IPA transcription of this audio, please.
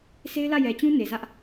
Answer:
se˦ɪ̯lä˦˨jɛ˨t͡ɕũ˦ ne˨zä˦ʔ

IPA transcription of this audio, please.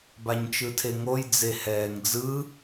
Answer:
baɲt͡ʃɯtʰeŋoj d͡zehɛːŋd͡zɯ

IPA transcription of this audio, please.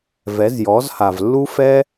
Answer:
vɛ˨˦zjɔ˨˦z ha˨v lːu˦fɛ˦

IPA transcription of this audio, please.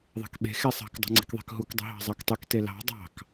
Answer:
ðˤe̤kɓe̤ xesˤɑ̤k dˤṳŋ͡ǀi̤kðˤe̤kɦuk dˤṳɦɑ̤zˤɑktˤøk telɑ̤ dˤɑ̤k

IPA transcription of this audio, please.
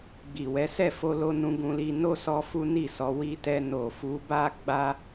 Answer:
ɡ͡bi˨wɛ˨˦ sɛ˦˨fo˧lo˧ nũ˧ɡũ˧li˧ no˦sɔ˧ fu˦ni˦˨sɔ˨˦ wi˧tɛ˧ no˨ fu˨˦ba˦ ɡ͡ba˦

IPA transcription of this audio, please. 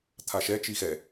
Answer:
t̪ʰaʃɛ t͡ʃixɛ

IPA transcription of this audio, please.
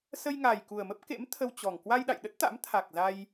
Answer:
sə˧jŋa˨˩j ku˨˩ə̯mə˦˥p̚kḛ˧˥m t̪ʰə˧wt͡ɕɔ˨˩ŋ kwa˧jɗa̰˧˨jɗə˦˥t̚t̪a̰˧˥m t̪ʰa˨˩k̚za˧j

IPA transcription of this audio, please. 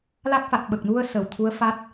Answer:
la˦˥k̚fa˨˩t̚ ɓə˨˩k̚nu˧ə̯ sə˨˩wt̪ʰu˧˥ə̯fa˦˥t̚

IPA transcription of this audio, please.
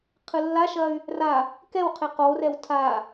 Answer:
qʰɨlːaʃɐy̯ | ra | kɛwqʰe qorɛw tʰa

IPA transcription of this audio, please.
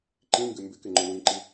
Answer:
ǃĩŋɡɪ mbɪkɪŋ͡ǃʊ wĩǃi

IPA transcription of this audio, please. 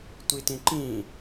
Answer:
tʷitĩǃĩ

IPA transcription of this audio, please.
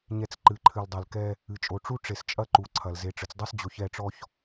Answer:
ɲɛ˨t͡s ǃɨ˨˦ǃʰɨ˨l dˤe˨lkɛ˦ | ɨ˨t͡ʃʼo˨ʈ͡ʂu˦ ʈ͡ʂe˨st͡ʃʼɐ˦ ǃu˨ǀʰɐ˨l ze˨ʈ͡ʂɨ˨t͡sdˤɐ˦s d͡ʑo˨çɛ˦˨ʈ͡ʂɔ˦ç

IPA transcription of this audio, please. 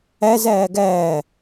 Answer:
æz æːɡæː

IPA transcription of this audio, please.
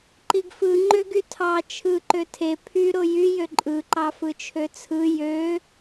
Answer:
ǃiɡfɯ ŋ͡ǃøɡytʰɑ t͡ʃʰɯ ǃøtʰe pʰy ɾojy jøǃʼɯ ǃɑfɯt͡ʃʰøt͡sʰɯ jø

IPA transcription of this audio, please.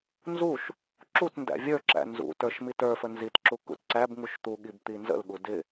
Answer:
nzuʃ | ǁutndæ̰ vʲə˞ǁæ̰ nzṵ tə˞ʃmitə˞fə nzitǁu kṵtǀæbŋuʃ t̪uɠib t̪inzə̰lɠu dɪ

